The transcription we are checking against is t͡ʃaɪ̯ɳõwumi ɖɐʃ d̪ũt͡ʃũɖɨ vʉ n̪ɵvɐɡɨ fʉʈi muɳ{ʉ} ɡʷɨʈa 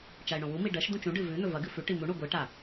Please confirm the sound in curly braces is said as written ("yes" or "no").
no